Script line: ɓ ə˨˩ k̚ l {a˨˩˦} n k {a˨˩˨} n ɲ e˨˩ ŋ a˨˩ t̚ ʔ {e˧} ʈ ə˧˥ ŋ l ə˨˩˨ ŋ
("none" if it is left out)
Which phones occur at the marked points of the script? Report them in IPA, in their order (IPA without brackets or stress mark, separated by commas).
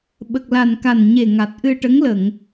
a˨˩, a˨˩, ɨ˧